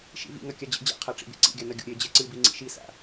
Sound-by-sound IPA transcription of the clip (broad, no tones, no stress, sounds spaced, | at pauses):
ʃ ḭ v ḭ ŋ ɐ kʲ a d͡ʑ ḛ d͡ʑ a̰ qʰ a ʈ͡ʂ ḭ b ḛ ǀ ḭ ɡʲ a n ɐ ɡʲ o̰ ɾʲ e d͡ʑ e ǀ ɨ b i ŋ͡ǀ ḭ ʃ i s a̰